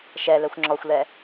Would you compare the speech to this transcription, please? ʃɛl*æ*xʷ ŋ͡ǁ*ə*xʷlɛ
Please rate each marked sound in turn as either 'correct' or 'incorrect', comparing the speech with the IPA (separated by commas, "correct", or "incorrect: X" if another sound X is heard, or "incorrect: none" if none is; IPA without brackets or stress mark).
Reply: incorrect: ɛ, incorrect: ɔ